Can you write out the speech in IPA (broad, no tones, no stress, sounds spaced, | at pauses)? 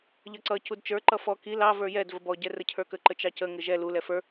ʎ ʌ ǀ ʌ c u d t͡ʃ ə˞ ǃ ʌ f ɔ k i l ɑ v ə˞ j ɛ d v ə b ɔ ɟ ɛ r ə cʰ ə˞ k ə ǃ ə t͡ʃ ɑ c ə ŋ ɪ ʒ ɛ l u l ɛ f ə˞